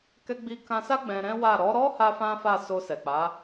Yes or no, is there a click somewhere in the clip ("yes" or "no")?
no